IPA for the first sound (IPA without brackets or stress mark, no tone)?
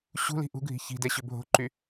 ɕ